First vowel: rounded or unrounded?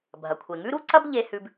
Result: unrounded